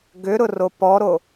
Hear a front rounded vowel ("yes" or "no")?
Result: yes